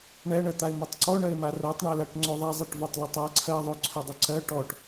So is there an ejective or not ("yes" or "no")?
no